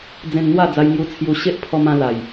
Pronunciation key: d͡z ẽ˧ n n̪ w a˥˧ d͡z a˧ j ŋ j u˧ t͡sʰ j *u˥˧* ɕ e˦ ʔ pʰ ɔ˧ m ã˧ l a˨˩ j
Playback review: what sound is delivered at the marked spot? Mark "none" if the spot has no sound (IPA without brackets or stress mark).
u˧